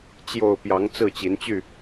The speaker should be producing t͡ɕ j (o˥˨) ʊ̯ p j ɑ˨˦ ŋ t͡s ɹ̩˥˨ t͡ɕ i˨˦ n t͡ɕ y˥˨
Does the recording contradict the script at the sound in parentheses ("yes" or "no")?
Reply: no